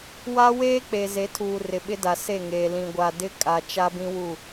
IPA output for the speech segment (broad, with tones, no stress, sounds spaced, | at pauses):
w a˦ w eː˦ k͡p e˨ z e˨˦ tʰ uː˨ r ɪ˨ ɓ ɪ˦ d a˨ s e˦˨ ŋ eː˨ l ĩ˨ ɡʷ a˨ d ɪ˦ kʼ a˨ t͡ʃ a˦ b ĩ˦ w u˦˨